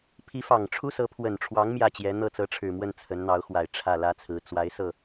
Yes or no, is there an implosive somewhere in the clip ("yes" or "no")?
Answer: no